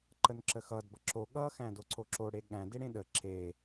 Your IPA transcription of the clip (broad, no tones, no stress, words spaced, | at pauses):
ǃənǁəxʌd bʌǁo ɠʌxæ̃ doǀoǁo ɽeɠæ̃ deɽẽɗə ǁe